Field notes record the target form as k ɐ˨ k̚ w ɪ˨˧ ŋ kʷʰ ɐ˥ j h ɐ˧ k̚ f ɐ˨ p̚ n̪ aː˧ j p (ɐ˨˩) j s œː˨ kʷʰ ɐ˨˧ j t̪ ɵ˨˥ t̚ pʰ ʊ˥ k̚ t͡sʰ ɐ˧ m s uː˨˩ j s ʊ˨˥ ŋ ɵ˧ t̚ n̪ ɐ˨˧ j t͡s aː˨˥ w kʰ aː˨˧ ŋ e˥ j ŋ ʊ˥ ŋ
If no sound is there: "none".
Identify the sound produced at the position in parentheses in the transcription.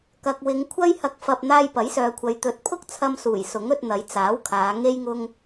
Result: ɐ˨˥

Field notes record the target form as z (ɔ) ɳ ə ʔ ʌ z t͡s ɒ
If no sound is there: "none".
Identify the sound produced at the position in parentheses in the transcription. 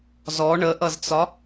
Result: ɔ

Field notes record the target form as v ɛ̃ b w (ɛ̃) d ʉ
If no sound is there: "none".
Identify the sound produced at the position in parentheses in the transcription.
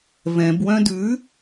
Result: œ̃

